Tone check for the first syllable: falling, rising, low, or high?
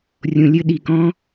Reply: low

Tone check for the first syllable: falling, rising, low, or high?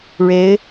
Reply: rising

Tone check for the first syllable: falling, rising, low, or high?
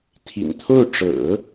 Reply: low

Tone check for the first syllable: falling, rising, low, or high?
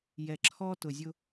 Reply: low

